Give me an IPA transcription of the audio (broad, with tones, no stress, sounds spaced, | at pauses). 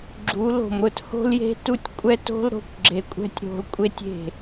ɡ͡ǁ u˨˦ l o̤˨ m ɾ ʊ˧ t h o̤˦ l j e̤˦ t u˦ tʲ kʷʼ ɛ˦ t o̤˦ l ɾ o̤˦ kʷ ɡ͡ǁ e˧ kʷʼ ɛ̤˦ tʲ ɾ o̤˧ l kʷʼ e˦ tʲ e̤˦˨